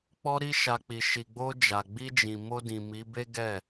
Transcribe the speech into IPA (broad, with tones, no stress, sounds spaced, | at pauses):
k͡p ɔ˧ ɾ i˧ ʃ a˨ k͡p i˨ ʃ i˨ ɡ͡b o˧ d͡ʒ a˨ ɡ͡b i˧ d͡ʒ ĩ˨ m o˧ d ĩ˨ m i˨˦ b e˦ ɡ ɛ˦˨